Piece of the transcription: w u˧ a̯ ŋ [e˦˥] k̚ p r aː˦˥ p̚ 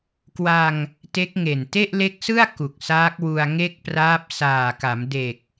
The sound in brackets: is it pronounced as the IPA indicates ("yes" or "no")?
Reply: no